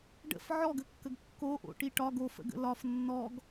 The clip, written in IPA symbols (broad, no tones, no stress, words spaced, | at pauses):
ɖə̰f ʕɔɡəkːəɡ kːoʔo̰ʈi ʈɒɡ ofə̰ɡə̰ lɒf nːɔɡ